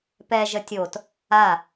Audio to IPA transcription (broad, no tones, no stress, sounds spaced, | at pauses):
p ɛ ʒ ə tʲ o t | a